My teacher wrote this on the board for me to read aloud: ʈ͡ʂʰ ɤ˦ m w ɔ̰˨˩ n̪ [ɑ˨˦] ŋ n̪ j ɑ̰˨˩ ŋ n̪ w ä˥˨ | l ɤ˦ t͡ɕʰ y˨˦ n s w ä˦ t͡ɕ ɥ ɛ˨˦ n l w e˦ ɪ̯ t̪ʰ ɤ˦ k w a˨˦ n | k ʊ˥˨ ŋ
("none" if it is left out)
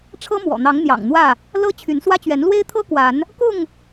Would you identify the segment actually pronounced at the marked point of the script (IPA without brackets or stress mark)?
ɑ˨˦